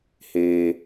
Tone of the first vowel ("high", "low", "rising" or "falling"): low